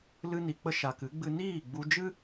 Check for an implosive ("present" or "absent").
absent